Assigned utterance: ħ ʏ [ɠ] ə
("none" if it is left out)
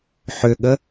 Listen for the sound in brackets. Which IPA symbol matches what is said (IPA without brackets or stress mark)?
ɠ